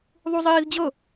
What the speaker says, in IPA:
ðˤ u zˤ iː z d͡ʑ ɤ

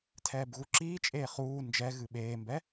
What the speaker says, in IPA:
tʰ ɛː b ɣ u ǁ iː t͡ʃʼ eː χ uː n d͡ʒ ɛ ɣ ɨ ɓ eː m b ɛ

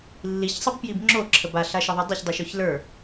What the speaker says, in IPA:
lː i ç sˤ ʌ b p j i b ŋ͡ǁ o ǁʰ ə b a ɬ a ʃ ʌ ðˤ i dˤ ə ç dˤ i ʃ o ç l ə˞

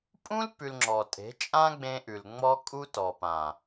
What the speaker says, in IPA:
pʼ ũ˦ l p ʉ˧ l ŋ͡ǁ ɔ˨ tʼ e̤˨˦ t͡ʃʼ ã˦ ɡ͡b ẽ˧ ʔ ʉ˨ l ŋ͡m ɔ˦ kʼ u˦ t ɔ˨ p ã˨

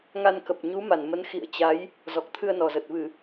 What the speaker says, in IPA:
ŋ a˧ n k ə˨˩ p̚ ɲ u˨˦ m a˧˩ n m ə˨˦ n x ḭ˧˨ ə̯ t͡ɕ a˨˦ j | z ɔ˨˩ k̚ t̪ʰ ɨ˧ ə̯ n ɔ˨˩ z ə˨˩ t̚ v ɨ˧˩˨

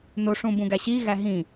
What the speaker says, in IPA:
n o ʂ ũ b ũ ɡ æ ɕ i ɣ æ ɦ ĩ

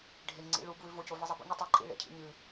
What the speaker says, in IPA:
ɖʱ e ŋ͡ǀ ḭ ɭ u b w ʉ v o c o v ɨ zˤ i b o̰ ɲ ɨ tˤ i ǃʼ ḭ ɭ ḛ cʰ ḭ ɲ ɨ

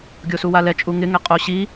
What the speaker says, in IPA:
ɡʲ o s u w a l ɛ t͡ʃʼ u ŋ ɪ ŋ ɛ qʼ o ɕ i

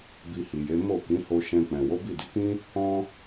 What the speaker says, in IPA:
b i˧ h i˨ j e˨˦ m o˦˨ k ĩ˨˦ h o˧ ʃ ɛ̃˧ k͡p ɛ̃˨ w o˨˦ b i˦˨ d i˨˦ k ĩ˦ | ɔ̃˧

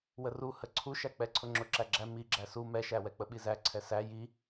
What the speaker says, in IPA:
w ə r u h ə ǀʰ u ʃ æ k͡p ɛ ǀʰ ʊ ŋ͡ǁ ʊ ǁ æ ɡ͡ǁ æ m i ɡ͡ǁ æ s u m ɛ ʃ æ w ɛ k͡p ə ɓ i z æ ǀʰ ɛ s æ j i

